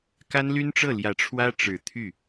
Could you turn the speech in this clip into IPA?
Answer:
k a˥ n l y˥ n ʈ͡ʂ ɤ˥˩ l j ä˨˩ ʈ͡ʂʰ w ä˥ ʈ͡ʂ ɻ̩˨˩ t̪ʰ y˥˩

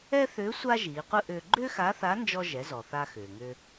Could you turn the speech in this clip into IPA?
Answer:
ɛ˥ θ ʏː˧˥ sʷ a˥ ʒ iː˩˧ qʷ ɯ˥ ʔ ʏː˧ ɡ͡ǃ ʏː˥ x a˧˥ θ a˧˥ n d͡ʒ ɔ˧ ʒ ɛ˩˧ z ɔ˩ θ a˧ x ʏː˩ ŋ ʏː˧

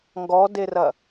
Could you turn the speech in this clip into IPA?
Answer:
ŋ ɡ ɔ d e r ɐ

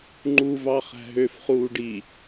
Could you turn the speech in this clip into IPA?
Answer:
ŋ͡ǃ u v ɑ χ æ̤ ɦ ø f χ uː ɖ i

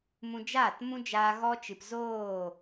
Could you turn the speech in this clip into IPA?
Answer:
m ũ˧ d͡ʒ aː˦˨ t m ũ˦ d͡ʒ aː˧ ɣ ɔ˧ t͡ʃ ɨ˨ p z oː˦˨

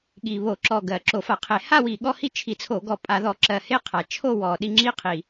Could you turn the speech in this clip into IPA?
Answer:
ɠ i˨˩ β o˧˩˧ ǁ ɔ˨˩ ɡ ɜ˨˩ ǁ o˧˩˧ f a˧˩˧ qʰ e˧˩˧ h a˥˧ w i˨˩ ɠ ɔ˥˧ h i˥˧ t͡ʃʰ i˧˩˧ t͡sʰ o˧˩˧ ɡ ɔ˧˩˧ pʼ a˧˩˧ ð ɔ˧˩˧ ǁ ɜ˨˩ h e˥˧ qʰ a˨˩ t͡ʃʰ o˥˧ w ɔ˨˩ ɗ i˥˧ ŋ͡ǁ i˥˧ qʰ i˨˩

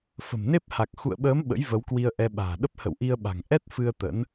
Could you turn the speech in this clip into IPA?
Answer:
f ə̤˨˩ m n e˦˥ p̚ h a˨˩ k̚ x ṵ˧˨ ə̯ ɓ əː˨˦ m ɓ ə̰˧˥ j v ə˨˦ w k w i˧ ə̯ ʔ ɛ˧ ɓ a̤ː˨˩ ɗ ə˦˥ p̚ h ə̰˧˨ w ʔ i˧ ə̯ ɓ a̤˨˩ ŋ ʔ ɛ˦˥ t̚ f ɨ˧ ə̯ t̪ ə̰˧˥ n

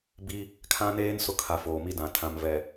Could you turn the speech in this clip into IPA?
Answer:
b i˦ | kʰ ã˦ n eː˦ n s ʊ˦ kʰ a˨ f oː˨ m i˦ d ã˨ tʰ ã˨ m v ɛ˨

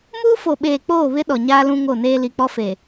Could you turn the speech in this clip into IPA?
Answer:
m uː˦ f o˨ ɓ eː˨ k͡p oː˦˨ β ɪ˦ ɗ ɔ˨ ɲ aː˦ l ũ˦ ŋ o˦˨ n eː˦ l i˨ k͡p ɔ˦ f e˨

